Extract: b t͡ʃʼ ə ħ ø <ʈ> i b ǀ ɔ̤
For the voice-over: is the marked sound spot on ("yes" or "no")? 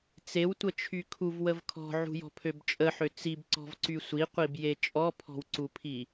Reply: no